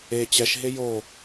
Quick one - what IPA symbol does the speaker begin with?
e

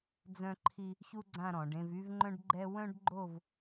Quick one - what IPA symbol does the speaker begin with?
d͡z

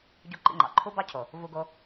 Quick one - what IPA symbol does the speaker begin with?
ɟ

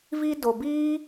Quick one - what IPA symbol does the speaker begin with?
v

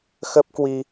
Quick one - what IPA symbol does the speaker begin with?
x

